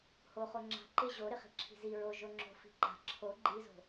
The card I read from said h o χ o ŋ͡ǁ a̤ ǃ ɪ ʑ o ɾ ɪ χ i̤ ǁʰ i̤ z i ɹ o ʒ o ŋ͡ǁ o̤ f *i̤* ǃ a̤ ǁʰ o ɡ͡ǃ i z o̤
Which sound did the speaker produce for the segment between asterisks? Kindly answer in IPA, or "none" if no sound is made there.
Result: i̤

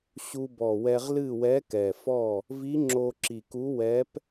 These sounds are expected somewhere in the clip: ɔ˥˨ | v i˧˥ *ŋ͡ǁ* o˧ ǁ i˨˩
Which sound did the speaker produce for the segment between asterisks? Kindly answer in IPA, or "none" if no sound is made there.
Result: ŋ͡ǁ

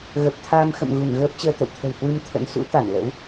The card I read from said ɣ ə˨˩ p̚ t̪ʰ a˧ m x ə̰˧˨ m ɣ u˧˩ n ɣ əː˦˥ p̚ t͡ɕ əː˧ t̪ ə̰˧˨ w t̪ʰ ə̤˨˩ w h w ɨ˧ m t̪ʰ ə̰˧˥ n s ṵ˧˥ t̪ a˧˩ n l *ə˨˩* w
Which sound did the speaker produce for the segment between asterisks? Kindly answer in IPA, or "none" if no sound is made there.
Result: ə̰˧˥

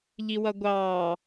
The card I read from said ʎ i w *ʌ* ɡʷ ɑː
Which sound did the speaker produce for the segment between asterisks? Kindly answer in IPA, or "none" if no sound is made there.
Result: ʌ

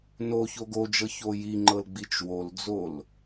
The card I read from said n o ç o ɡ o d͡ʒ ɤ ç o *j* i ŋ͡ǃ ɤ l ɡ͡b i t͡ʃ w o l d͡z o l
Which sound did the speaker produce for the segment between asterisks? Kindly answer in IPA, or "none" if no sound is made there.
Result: j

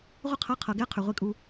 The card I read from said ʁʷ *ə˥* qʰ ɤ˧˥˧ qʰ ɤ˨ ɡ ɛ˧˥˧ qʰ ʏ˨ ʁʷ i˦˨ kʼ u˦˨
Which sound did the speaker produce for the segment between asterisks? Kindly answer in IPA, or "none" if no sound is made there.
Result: ə˥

